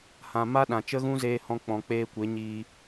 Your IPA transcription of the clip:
hã˨ma˦ɗã˨ t͡ʃə˦ɣũ˦zeː˧hɔ̃˧ k͡pɔ̃˨ k͡peː˧kʷe˨˦ɲiː˧

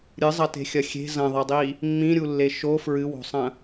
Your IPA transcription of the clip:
ɾʲɨzˤɐte̤xʲɐ xʲe̤ zɐ̃ðˤɛdˤi | mːĩɾʲulːe ʃo fɹɨwo̤sˤɐ̃

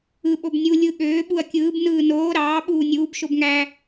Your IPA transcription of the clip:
ɯ ɓobnʲu lʲɯ ɠøː ɓuɐ̯kʲɯːb nɯːnoː ɾɑː ɓuːnʲuːb ʃobŋæ

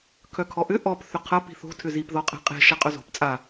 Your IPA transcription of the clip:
kʰœkʰɔʔʏ ʔɔp θʏqʰɐ pi̤θo̤ tʰʏzip ðɔqʼɛ̤qʼe̤ ʃaqʼœzo̤p t͡sʼa

